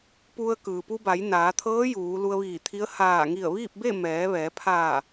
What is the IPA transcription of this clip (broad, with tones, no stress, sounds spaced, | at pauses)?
p u˧ ə̯ k ɯː˩ p u˧ b a˩˧ j n aː˩˧ t̪ʰ ɤː˧˥ j uː˩˧ l u˧ ə̯ ʋ iː˧˩ t̪ʰ i˧˥ ə̯ h aː˧˩ ŋ i˧˩ ə̯ ʋ iː˥˨ p̚ b e˥˨ m ɛː˩˧ ʋ ɛː˩˧ pʰ aː˧˩